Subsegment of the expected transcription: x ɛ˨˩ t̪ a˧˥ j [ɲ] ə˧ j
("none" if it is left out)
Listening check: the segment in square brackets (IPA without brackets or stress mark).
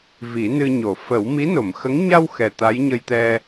ɲ